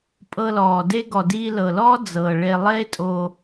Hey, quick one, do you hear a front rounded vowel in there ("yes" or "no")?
no